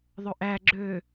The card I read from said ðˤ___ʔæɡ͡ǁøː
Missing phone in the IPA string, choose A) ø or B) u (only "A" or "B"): A